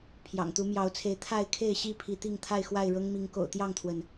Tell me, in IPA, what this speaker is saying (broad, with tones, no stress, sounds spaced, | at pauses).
pʰ j ɑ̰˨˩ ŋ t̪ u˨˦ m j ɑ˨˦ ʊ̯ t͡sʰ e˨˦ ɪ̯ t̪ʰ a˥˨ ɪ̯ kʰ e˥˨ ɪ̯ ɕ i˥˨ pʰ i˨˦ t̪ i˥˨ ŋ t̪ʰ a˥˨ ɪ̯ x w a˥˨ ɪ̯ ɻ ɤ˦ ŋ m i˨˦ ŋ k o̰˨˩ ʊ̯ t̪ j ɑ˥˨ ŋ t̪ʰ w ə˩ n